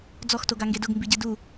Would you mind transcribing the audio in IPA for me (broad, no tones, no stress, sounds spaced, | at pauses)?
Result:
d͡z ɔ x t o ɡ a ŋ ɡ e d ʊ ɡ m b i ɟ ɪ d u